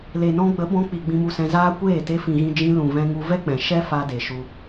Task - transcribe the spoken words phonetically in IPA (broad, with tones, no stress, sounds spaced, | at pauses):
l e˨ n ɔ̃˧ ɡ͡b ə˨˦ b ɔ̃˧ k͡p i˨ ɡ͡b ĩ˧ m u˧ s ɛ̃˧ z aː˦ kʷ eː˦˨ t e˧ f ĩ˨ ɣ ĩ˧ d͡ʒ ĩ˧ l ũ˨ v ɛ̃˧ ŋ u˧ v ɛ˦ k͡p ɛ̃˨ ʃ ɛ˦ f a˧ d e˨ ʃ u˧